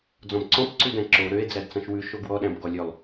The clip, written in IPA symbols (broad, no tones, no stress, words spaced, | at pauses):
d͡zɔ̃bǀɔ̃pǀʉdæ̃ ǁo ɾøe̯ d͡zædt͡sɑ̃ʃwʉ ʃoɡwɔɗæ̃bɡɔ lʲølˠ